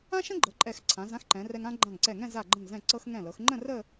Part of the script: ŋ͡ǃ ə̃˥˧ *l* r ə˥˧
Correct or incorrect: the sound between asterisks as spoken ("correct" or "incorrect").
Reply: incorrect